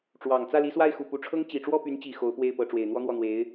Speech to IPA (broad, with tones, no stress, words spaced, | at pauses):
ʈ͡ʂwɑ˨˩ŋ t͡sä˥˩li˧˥swa˥˩ɪ̯xu˨˩ pu˧˥ʈ͡ʂʰɤ˥ŋ t͡ɕi˨˩ʈ͡ʂwɔ˥˩py˧˥nt͡ɕi˨˩ xo˧˥ʊ̯pwe˥˩ɪ̯pɤ˧˥ ʈ͡ʂwe˨˩ɪ̯n̪wɔ˥n̪wɔ˥˩n̪we˧˥ɪ̯